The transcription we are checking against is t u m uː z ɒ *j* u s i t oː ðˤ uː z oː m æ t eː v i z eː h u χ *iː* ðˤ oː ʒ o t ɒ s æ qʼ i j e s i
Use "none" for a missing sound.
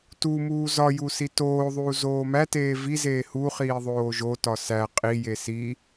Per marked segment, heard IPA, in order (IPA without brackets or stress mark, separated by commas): j, iː